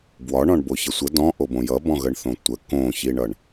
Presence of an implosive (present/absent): absent